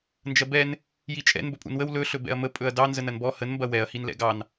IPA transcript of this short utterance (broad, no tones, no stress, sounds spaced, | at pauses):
n d͡ʒ ɐ b ɛ n | j i t͡ʃʼ ɛ̰ n b ɵ pʼ ṵ n w ə w l ɵ ɬ ɵ b ɛ̰ ɐ̯ m ə pʼ ɵ ɐ̯ d ɑ n z ə n ɐ n b ɔ h ə n m b ɐ w ɛ ɐ̯ h i n l ɛ̰ ɡ ɑ n